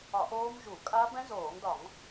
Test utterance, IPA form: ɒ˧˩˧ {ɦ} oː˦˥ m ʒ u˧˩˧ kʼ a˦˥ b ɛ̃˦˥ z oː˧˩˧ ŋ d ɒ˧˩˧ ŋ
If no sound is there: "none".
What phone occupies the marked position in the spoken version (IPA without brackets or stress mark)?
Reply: ʔ